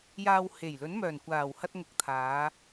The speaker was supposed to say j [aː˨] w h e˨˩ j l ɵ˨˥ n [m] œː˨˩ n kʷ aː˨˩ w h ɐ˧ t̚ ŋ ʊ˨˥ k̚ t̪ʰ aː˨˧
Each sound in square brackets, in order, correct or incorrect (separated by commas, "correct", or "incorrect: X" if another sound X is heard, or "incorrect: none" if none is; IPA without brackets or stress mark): correct, correct